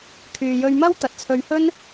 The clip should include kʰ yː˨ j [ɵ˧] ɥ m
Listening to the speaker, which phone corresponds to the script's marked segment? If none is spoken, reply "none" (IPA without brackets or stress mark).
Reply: ɵ˧